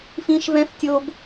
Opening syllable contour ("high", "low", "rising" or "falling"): high